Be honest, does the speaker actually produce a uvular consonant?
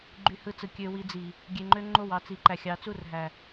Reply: no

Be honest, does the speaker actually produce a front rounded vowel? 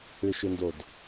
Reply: yes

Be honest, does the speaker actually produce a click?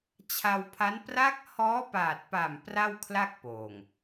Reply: no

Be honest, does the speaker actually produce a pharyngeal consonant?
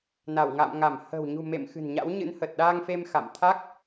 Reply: no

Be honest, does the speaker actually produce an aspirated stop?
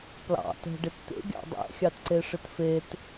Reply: no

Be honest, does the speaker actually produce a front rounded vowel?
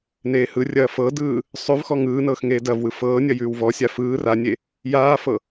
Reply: no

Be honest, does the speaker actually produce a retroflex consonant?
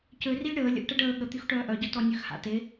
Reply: yes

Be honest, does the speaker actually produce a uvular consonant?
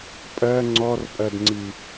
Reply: no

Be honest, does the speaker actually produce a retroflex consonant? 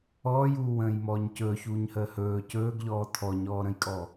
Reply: no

